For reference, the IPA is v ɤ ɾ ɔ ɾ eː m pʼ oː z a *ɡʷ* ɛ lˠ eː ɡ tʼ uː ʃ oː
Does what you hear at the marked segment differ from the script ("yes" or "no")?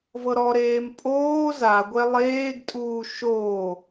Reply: no